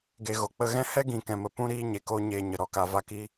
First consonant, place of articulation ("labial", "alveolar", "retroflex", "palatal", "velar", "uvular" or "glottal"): velar